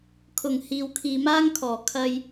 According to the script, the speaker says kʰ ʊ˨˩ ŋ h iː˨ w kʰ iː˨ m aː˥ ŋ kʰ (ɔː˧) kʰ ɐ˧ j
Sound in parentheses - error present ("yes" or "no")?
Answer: yes